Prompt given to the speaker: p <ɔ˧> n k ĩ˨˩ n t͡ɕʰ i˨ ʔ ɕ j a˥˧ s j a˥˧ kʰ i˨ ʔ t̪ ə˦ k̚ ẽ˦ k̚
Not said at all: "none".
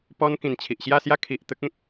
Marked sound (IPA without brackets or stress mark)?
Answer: ɔ˧